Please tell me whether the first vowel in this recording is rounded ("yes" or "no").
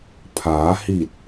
no